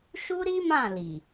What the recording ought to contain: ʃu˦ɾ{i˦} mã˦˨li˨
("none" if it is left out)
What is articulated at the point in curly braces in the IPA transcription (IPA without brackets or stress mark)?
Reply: i˦